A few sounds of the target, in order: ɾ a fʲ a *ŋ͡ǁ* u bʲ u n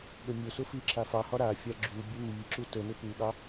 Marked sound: incorrect: ɡ͡ǁ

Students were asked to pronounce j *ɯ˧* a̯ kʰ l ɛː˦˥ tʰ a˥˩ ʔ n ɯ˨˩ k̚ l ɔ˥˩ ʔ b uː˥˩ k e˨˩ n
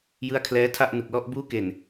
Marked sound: incorrect: ɯ˦˥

